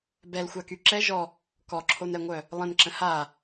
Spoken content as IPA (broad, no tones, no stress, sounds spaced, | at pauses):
b ɛ l xʷ a k y ǁ ɛ ʒ ɔ | k ɔ ǁʰ o n ɛ ŋʷ œ | lˠ ə̃ n ǁ ə̃ h a